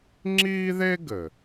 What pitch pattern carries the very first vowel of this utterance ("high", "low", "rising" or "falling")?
high